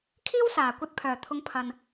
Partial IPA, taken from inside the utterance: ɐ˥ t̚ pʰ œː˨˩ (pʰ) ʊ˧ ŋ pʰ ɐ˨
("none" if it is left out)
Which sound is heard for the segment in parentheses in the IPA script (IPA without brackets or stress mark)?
t̪ʰ